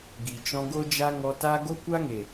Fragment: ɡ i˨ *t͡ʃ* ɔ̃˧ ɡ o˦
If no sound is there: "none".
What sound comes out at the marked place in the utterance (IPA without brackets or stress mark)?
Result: t͡ʃ